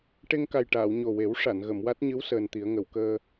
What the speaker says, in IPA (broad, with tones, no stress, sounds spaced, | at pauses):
ʈ e˧ ŋ k a˨˩ j ʈ aː˨˩˨ w ɲ o˨˩ w e˨˩˦ w ʂ a˨˩˨ n ɣ ə˨˩˨ m w a˦˥ t̚ ɲ ɨ˧˥ w s əː˧ n t̪ i˨˩˦ ə̯ ŋ ə˨˩˨ w k əː˧